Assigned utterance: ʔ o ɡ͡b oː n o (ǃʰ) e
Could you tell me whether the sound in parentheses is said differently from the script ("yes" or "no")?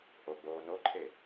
no